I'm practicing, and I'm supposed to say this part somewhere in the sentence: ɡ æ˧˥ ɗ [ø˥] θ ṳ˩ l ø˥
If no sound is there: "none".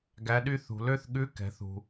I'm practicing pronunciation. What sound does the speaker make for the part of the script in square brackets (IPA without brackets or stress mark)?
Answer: y˥